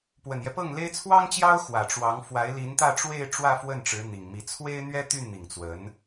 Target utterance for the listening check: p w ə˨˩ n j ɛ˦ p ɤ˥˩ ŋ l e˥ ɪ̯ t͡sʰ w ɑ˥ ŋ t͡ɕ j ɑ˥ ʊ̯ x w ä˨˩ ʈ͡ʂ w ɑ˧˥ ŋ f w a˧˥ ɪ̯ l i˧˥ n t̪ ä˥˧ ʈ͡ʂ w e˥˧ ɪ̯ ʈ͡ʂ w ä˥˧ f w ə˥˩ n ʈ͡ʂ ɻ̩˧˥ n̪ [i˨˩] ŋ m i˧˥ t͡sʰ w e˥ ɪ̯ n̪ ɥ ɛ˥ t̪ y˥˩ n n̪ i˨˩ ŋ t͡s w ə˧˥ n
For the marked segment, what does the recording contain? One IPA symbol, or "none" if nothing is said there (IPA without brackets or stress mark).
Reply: i˨˩